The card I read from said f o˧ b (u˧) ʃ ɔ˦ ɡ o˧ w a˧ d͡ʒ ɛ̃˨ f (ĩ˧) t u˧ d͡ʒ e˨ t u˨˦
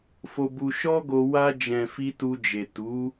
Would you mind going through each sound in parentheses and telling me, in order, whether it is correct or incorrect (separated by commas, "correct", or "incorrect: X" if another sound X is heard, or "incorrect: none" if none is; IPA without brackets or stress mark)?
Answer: correct, incorrect: i˧